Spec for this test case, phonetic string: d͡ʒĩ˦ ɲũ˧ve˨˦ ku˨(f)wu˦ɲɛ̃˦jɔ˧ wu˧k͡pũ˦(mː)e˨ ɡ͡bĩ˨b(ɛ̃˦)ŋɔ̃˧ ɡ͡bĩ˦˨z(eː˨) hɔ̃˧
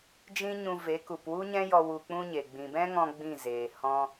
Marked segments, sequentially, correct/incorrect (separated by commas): incorrect, incorrect, correct, correct